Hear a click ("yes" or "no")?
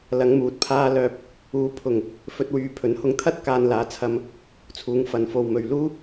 no